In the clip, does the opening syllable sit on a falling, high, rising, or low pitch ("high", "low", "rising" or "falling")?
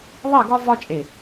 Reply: falling